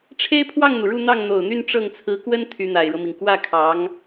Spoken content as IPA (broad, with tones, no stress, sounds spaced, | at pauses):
ʈ͡ʂʰ e˥ ɪ̯ pʰ w ɑ˥˩ ŋ n̪ u˩ ɻ u˥˧ n̪ ɑ˥˩ ŋ n̪ o˨˩ ʊ̯ n̪ y˥˧ n ʈ͡ʂ ɤ˥˩ ŋ t͡sʰ ɹ̩˧˥ k w ə˥ n t̪ʰ y˧˥ n̪ a˨˩ ɪ̯ ɻ ɤ˦ m i˩ ŋ k w ä˥˩ kʰ ɑ˧˥ ŋ